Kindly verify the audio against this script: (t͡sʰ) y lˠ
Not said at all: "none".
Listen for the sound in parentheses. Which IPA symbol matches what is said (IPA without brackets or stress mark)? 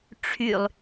ʈ͡ʂʰ